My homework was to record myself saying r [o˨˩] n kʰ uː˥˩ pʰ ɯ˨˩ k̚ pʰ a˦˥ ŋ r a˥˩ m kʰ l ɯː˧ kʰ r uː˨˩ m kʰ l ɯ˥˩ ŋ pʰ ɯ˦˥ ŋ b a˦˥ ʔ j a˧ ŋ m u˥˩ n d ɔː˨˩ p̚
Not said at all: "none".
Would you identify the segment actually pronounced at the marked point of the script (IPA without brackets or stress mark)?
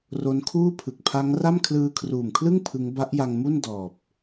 o˦˥